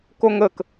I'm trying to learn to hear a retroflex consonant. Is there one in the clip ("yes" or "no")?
no